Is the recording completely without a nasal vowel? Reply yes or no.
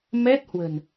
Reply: yes